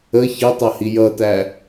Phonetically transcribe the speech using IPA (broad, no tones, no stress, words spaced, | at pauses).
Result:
ə çətˤʌhi jʌtæ